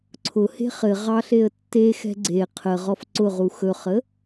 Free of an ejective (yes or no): yes